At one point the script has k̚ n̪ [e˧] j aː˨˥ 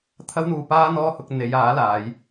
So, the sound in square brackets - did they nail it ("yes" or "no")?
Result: no